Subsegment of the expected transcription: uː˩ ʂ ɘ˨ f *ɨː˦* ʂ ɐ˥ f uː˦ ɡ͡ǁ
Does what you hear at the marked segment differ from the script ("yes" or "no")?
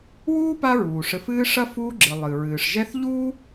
no